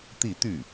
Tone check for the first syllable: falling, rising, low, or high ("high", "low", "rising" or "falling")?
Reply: falling